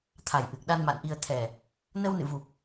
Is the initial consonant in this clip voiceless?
yes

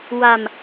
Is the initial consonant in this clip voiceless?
no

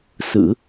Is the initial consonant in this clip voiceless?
yes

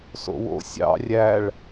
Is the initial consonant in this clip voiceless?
yes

